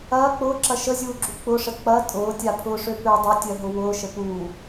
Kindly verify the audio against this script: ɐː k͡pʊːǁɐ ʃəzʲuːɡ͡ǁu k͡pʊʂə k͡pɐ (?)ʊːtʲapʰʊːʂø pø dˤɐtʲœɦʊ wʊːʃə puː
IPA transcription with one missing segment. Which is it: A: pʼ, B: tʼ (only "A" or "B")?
B